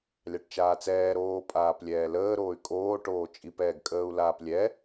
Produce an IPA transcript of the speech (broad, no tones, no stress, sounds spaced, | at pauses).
lʲ ɑ ʈ t͡ʃ aː t͡s ɛː ɾ oː pʼ aː p lʲ ɛː l əː ɾ oː y̯ kʼ oː ʈ oː t͡ʃʼ i p ɛː ɡ kʼ əː u̯ l aː p lʲ ɛ